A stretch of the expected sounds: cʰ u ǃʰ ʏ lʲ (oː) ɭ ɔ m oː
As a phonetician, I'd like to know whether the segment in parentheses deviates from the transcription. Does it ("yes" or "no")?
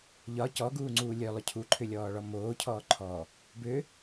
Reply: yes